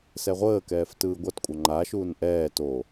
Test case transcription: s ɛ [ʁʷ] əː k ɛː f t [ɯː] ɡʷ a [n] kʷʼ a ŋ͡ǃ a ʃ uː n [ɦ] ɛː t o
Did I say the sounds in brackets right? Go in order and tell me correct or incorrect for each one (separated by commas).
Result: correct, correct, incorrect, incorrect